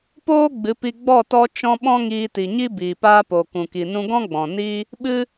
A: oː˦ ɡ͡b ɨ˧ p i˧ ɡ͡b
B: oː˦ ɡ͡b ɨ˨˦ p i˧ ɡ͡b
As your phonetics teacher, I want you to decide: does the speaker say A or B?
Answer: B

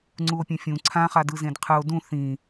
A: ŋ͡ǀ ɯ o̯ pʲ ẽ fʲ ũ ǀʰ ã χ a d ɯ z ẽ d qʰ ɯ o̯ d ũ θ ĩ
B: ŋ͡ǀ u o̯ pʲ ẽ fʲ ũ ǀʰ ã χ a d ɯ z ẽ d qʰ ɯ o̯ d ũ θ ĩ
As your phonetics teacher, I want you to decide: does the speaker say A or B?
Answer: B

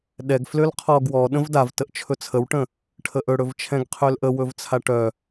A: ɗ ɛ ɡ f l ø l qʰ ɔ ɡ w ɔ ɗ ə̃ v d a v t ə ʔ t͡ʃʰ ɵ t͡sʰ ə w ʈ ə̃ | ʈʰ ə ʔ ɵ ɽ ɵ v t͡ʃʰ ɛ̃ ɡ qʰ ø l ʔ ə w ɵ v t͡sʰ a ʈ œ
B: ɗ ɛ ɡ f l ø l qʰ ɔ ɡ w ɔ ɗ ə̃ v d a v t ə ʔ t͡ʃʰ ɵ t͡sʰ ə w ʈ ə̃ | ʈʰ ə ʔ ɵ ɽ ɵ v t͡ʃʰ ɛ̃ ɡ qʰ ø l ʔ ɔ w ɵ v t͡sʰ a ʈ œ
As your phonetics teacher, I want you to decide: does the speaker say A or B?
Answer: A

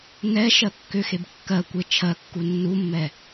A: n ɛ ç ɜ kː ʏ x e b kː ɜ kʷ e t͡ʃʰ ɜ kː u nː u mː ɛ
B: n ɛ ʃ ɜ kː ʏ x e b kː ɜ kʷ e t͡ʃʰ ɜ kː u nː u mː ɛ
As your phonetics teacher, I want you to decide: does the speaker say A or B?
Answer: B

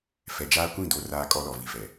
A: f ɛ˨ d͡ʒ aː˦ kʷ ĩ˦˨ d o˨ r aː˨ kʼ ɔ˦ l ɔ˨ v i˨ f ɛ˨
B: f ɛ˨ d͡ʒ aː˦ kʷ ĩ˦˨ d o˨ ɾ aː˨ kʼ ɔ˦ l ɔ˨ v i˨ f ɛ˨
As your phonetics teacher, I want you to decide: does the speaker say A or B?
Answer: A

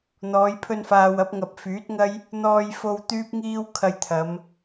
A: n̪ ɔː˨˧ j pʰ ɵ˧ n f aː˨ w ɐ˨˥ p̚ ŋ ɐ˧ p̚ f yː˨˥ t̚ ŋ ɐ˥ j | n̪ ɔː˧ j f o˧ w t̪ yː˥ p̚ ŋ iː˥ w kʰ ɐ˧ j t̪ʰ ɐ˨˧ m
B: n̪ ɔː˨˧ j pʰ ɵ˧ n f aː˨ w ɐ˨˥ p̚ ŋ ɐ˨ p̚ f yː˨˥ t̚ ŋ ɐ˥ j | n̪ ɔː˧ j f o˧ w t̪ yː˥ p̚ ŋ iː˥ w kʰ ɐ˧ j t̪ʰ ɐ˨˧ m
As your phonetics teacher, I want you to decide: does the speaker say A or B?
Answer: B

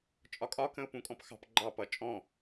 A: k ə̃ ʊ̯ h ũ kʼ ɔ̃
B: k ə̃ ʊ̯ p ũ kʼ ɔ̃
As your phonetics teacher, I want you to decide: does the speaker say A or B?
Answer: B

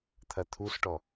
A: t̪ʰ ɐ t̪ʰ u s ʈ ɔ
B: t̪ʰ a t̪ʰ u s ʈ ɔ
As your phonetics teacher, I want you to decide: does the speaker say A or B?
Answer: A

